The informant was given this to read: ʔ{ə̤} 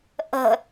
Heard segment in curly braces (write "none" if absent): ə̤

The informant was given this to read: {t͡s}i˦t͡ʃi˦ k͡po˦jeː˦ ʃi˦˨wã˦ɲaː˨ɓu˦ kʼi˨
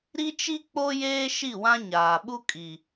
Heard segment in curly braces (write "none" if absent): ɾ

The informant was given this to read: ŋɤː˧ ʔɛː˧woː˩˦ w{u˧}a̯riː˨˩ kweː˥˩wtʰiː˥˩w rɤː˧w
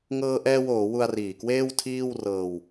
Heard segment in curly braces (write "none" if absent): u˧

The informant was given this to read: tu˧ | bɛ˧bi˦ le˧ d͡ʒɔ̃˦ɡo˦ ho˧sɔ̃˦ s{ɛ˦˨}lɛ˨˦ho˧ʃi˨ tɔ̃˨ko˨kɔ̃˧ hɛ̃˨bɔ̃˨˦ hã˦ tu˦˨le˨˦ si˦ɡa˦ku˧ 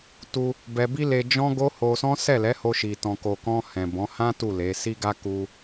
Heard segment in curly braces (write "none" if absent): ɛ˦˨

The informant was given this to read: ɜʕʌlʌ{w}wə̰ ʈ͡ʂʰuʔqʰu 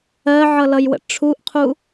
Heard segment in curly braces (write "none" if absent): j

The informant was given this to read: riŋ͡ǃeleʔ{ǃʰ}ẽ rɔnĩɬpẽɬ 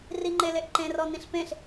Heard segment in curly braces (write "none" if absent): ǃ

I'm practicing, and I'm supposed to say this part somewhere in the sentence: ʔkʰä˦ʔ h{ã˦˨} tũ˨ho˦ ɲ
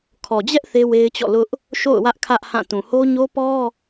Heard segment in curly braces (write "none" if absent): ã˦˨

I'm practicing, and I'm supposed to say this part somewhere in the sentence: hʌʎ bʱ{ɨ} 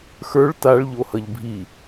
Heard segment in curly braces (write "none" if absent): i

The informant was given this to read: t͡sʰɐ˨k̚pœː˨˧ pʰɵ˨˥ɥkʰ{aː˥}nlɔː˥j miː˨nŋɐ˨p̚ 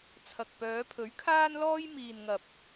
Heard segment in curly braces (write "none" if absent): aː˥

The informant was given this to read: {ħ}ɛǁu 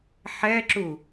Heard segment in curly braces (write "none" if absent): ħ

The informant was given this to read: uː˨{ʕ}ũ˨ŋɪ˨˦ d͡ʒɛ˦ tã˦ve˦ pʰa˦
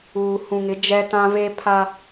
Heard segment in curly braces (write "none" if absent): h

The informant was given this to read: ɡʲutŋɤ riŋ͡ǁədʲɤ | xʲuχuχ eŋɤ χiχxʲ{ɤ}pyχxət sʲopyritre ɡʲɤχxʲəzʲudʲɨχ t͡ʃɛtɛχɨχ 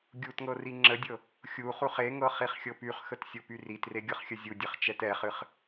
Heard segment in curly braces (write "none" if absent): ɤ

